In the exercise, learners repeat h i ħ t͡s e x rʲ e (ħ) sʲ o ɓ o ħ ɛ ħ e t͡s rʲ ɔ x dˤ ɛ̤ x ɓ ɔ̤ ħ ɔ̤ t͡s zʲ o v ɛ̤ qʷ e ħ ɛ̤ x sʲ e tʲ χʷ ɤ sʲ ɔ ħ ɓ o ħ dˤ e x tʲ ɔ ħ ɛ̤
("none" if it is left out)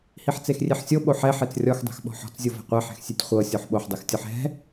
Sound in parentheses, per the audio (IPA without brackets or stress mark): ħ